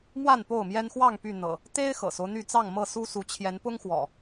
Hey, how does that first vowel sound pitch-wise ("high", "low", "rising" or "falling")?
falling